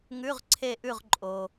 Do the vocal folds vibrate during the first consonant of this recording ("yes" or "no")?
yes